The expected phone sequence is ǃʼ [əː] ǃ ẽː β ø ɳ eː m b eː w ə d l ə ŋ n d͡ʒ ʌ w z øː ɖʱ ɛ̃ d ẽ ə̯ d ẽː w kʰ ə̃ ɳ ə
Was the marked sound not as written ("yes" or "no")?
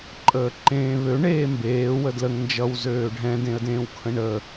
no